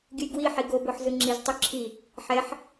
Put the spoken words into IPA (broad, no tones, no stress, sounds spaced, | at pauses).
ɡʲ ɯ j ɡ w i ħ i ɡ o b o ħ z ɯ ŋ͡ǁ i z tˤ o ǁʰ i | ħ ɛ ħ